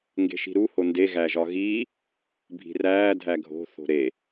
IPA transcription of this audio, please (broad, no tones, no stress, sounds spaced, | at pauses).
ŋ ɡ e̤ ʃ i̤ ɾ u h o n d e ɣ æ ʒ ɒ ɣ iː | bʱ i̤ r æː dʱ æ ɡʱ o̤ θ o̤ ɾ e